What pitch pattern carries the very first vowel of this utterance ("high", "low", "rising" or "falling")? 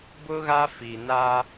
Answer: high